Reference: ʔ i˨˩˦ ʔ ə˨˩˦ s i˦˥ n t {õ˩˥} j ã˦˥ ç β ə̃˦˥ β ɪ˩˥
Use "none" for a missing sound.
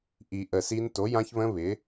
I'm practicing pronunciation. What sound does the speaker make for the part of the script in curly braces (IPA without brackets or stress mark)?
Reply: o˩˥